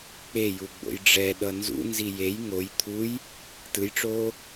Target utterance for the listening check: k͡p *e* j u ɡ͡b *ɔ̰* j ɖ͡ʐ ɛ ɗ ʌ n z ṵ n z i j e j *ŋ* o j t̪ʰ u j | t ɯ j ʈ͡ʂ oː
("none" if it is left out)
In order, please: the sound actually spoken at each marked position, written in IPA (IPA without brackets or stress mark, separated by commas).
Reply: e, o̰, ŋ